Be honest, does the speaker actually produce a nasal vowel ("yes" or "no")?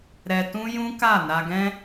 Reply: yes